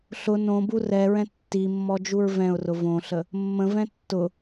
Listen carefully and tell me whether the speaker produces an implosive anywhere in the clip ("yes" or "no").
no